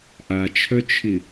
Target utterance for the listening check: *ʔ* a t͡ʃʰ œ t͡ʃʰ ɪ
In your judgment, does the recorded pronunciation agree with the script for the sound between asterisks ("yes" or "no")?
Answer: yes